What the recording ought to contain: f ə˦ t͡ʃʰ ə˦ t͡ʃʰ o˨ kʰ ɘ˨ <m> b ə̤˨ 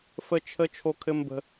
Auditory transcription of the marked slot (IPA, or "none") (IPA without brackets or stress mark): m